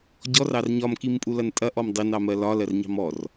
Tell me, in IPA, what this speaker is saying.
ɟ ɔ r ɑ r ɲ ɒ m k i m pʼ u l ɐ n tʼ ɐ ʔ ɔ m dˤ i n ɑ m ɜ l ɒ l ɜ r ɲ ɑ̤ m ɔ r

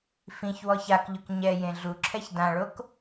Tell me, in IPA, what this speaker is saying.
f ĩ ç w ɔ ç a k ʎ ʊ k ɲ ɛ j ẽ ɮ u ǁʰ ɛ ç d ã ɭ o k

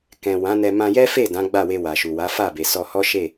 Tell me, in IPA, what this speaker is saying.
k ɛ̃˨ w ã˨˦ n ɛ˧ m ã˧ j ɛ˦ f e˦˨ d ã˨˦ ɡ͡b a˦˨ w e˧ w a˨ ʃ u˨ w a˨˦ f a˦˨ b e˨ s ɔ˧ h ɔ˦ ʃ e˦˨

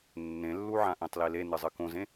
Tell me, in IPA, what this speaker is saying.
nː ẽ lː u ʕ ã ʔ ẽ tˤ l i l e n ɨ zˤ ɨ k õ z ẽ

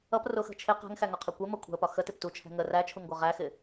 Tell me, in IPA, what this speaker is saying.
ʌ p r ʊ x ə̤ t͡ʃʰ ɪ q æ̤ ŋ x æ ŋ ɒ qʰ ɛ kʷ ɛ m ʌ kʷʰ æ̤ ə̯ p ɒ x ə t ɪ p t u t͡ʃʰ ɛ̤ ŋ ə r æ t͡ʃʰ u ŋ ɡʷ ʌ ʁ æ x ɪ

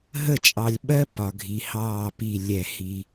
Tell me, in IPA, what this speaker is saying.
ɦ ə˦˨ t͡ʃʼ ɑ˨ lʲ ɓ ɜ˦ p ɒ˨ ɡʱ i˨ h ɑː˦˨ p i˦˨ lʲ ɛ˦˨ h i˦

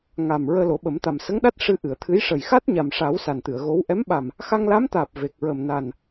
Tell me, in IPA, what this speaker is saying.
ŋ a˨˩ m ɹ əː˧ l o˨˩˦ ɓ ə˨˩˦ m t̪ a˨˩ m s ə˧˥ ŋ ɗ a˦˥ t̚ ʂ ɨ˧ ʔ ɨ˨˩˨ ə̯ t̪ʰ ɨ˧˥ j ʂ ə˨˩ j x a˦˥ t̚ ɲ a˨˩ m ʂ a˨˩˦ w s a˨˩ n t̪ ɨ˨˩˨ ə̯ ɣ o˧˥ w ʔ ɛ˧˥ m ɓ a˨˩ m | x a˧ ŋ l a˧˥ m t̪ aː˨˩ p̚ v e˨˩ k̚ ɹ ə˨˩ m n a˨˩ n

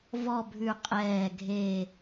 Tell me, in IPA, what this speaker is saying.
v ɔ˥˧ bʱ ʉ˧˩ qʼ ɛː˧˩ ɡʱ e˧˩

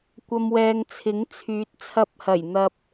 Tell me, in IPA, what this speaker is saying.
kʷ ɐ˨ m w ɛː˨ ŋ t͡sʰ ɪ˨˥ ŋ t͡sʰ yː˨˥ t̚ t͡sʰ ɐ˧ p̚ h ɐ˨˩ j n̪ ɐ˨ p̚

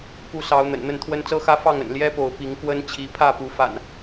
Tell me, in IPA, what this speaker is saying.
k u˨˦ s ɑ˨˦ ʊ̯ n̪ ə̰˨˩ n n̪ ə˥˨ n t̪ʰ w ə˦ n t͡s ɤ˦ x ä˦ f ɑ˥˨ ŋ ə̰˨˩ n l j ɛ˦ p o˨˦ ʊ̯ p i˨˦ ŋ k w ə˦ n t͡ɕʰ i˨˦ pʰ ä˥˨ p u˨˦ f a̰˨˩ n

